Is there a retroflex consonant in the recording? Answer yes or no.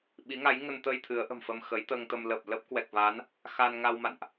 no